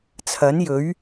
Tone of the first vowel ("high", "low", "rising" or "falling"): rising